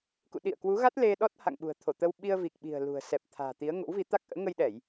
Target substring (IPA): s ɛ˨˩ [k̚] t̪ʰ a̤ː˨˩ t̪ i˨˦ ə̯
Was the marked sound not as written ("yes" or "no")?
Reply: yes